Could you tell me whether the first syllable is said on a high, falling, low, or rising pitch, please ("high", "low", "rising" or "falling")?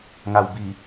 low